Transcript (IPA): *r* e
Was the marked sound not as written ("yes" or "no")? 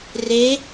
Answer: no